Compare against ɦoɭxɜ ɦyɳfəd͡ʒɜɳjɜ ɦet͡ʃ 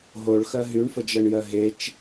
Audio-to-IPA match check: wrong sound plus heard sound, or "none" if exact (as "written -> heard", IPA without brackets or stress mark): none